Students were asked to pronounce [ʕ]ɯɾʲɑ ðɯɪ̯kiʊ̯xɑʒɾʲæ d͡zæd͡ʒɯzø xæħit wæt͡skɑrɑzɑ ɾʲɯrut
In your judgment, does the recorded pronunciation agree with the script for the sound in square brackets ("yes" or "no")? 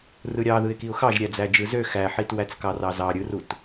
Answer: no